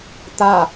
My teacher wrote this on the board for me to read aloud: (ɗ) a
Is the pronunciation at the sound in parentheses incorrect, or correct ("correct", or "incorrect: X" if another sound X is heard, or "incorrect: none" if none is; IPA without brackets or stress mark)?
incorrect: t̪